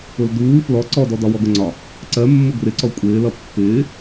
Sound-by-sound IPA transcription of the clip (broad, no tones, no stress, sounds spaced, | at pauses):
ʊ l d uː f l ɔ ǀ ɔ d ɔ d ɒ w ɔ ɡ ʊ ŋ͡ǀ ɒ | ǀ ɜ mː ʊ ɡ r ɪ ǀ ɔ kʷʼ ɪː l ʌ pː ɪː